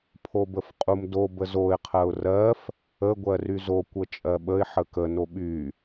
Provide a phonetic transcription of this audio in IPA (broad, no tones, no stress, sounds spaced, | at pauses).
pʰ o b ə f qʼ u m d o b ə z o ɪ̯ qʰ ɜ ʊ̯ r ɜ f | ə ɡʷ ɜ r y z o kʷ ə t͡ʃʼ ɜ ɓ ə ɪ̯ ħ ə k ə n o ɓ y